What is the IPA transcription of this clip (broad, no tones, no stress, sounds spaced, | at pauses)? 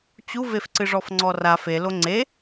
t͡ɕ u v e f ǀ ɨ ʐ ɔ f ŋ͡ǀ ɔ r a f e l o ŋ͡ǀ e